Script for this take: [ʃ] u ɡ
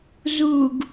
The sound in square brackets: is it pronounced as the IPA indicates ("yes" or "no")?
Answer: no